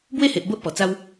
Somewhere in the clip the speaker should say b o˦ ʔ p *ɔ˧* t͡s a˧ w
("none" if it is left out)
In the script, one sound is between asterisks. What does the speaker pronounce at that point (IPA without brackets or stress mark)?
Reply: ɔ˨˩